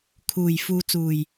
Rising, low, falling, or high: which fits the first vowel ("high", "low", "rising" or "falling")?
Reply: low